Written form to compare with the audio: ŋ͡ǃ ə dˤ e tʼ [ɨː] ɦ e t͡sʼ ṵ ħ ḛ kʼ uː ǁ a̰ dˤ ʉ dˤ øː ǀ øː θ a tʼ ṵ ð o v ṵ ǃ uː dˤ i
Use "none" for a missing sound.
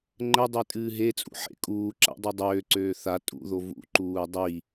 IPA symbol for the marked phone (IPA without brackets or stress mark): ɨː